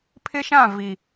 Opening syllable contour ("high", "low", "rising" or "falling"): high